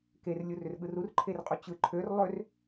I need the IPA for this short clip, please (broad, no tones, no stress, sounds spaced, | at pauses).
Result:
k e r lʲ u r ʏ r ɠ ɯ r u r ǃʰ e r qʼ u t͡ɕ ɯ ǃʰ ø r lˠ ø r